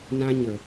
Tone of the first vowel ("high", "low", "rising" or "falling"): high